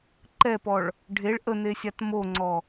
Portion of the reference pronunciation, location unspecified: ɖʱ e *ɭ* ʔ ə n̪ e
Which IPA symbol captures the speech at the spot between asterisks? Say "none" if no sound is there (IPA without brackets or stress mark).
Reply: ɭ